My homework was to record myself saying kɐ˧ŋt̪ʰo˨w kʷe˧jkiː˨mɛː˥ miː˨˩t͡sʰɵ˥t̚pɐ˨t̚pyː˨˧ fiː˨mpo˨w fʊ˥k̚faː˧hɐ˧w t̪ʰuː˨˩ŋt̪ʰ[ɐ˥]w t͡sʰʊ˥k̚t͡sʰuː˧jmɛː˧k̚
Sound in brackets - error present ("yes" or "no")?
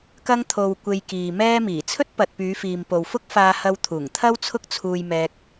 no